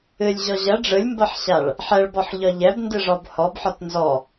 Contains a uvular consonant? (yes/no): no